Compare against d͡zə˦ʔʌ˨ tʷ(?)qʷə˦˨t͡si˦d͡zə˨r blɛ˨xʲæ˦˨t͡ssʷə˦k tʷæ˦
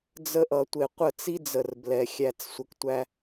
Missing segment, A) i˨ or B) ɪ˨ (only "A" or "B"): B